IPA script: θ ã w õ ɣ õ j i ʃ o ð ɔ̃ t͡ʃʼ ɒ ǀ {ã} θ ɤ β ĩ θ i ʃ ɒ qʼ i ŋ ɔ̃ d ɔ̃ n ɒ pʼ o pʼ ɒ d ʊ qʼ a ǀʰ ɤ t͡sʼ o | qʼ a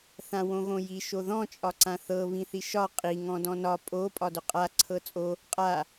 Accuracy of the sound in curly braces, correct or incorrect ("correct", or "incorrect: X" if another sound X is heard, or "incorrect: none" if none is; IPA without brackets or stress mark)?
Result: correct